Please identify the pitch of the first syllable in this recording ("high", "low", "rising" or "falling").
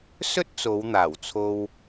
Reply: high